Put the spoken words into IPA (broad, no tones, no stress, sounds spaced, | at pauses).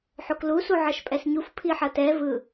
ħ o k l u s u ʕ ʌ ʃ pʼ ɛ s ɲ u f pʰ i ħ ʌ t ɛ v ɯ